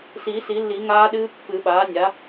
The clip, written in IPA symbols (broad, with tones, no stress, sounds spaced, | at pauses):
s iː˨˩˦ s i˨˩˦ lː i˨˩˦ ŋ aː˦˥ ɗ ɨː˦˥ pː ɨ˨˩˦ ɓ aː˩˥ nʲ a˩˥